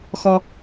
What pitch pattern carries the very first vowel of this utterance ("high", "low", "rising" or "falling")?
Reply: high